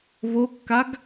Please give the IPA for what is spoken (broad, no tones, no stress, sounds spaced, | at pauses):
β o kː a ɡ